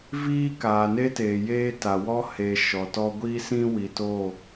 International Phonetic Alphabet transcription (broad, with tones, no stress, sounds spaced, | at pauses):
v iː˦ k aː˨ n e˦ t eː˨ j eː˦ t a˨ w ɔ˦ h e˨ ʃ ɔ˨ t ɔ˦ ɡʷ i˦ s ĩ˦ w i˨ t o˦˨